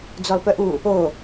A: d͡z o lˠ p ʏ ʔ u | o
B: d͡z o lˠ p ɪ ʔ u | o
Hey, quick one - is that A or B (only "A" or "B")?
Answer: A